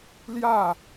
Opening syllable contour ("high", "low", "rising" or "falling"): falling